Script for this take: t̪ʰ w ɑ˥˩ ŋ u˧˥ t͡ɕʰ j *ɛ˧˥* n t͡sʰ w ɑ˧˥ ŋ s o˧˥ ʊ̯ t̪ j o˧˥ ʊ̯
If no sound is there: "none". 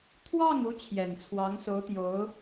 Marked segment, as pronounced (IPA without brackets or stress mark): ɛ˨˩